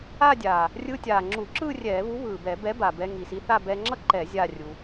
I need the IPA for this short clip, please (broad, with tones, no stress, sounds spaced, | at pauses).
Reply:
a˥˧ dʲ a˨˩ | rʲ ɯː˧ tʲ aː˨˩ ŋ͡ǁ uː˧˩˧ ǁ ɯː˥˧ rʲ ɛː˧˩˧ β u˨˥ β ɯː˨˩ b ɛ˧˩˧ b ɛ˨˥ b a˨˩ b ɛ˧ ŋ i˨˩ s i˧ θ a˥˧ b ɛː˧ ŋ͡ǁ ʌ˥˧ ǃ ɛ˧˩˧ zʲ a˥˧ rʲ u˧